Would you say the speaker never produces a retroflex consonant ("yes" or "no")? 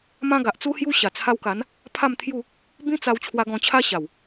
yes